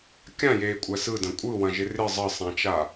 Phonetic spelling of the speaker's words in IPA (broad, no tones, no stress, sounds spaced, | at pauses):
kʲ ã j eː kʷʼ æ s ɯ d ɐ̃ kʷʼ ɯ w ɐ̃ ʒ ɪ r ɪ zˤ ə sˤ ã t͡ʃ a